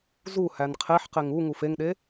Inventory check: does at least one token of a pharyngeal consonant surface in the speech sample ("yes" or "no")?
yes